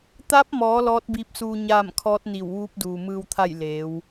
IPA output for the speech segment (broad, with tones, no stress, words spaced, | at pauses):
t̪a˧˥p̚mɔː˩˧ lɔː˧˥t̚biː˧˥p̚suː˧ ɲaː˥˨m kʰɔː˧˥t̚ni˧˩wʋuː˧˥p̚ duː˩mɯː˧wt̪ʰa˥˨j leː˩˧w